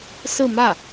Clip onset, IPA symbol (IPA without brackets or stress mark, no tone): s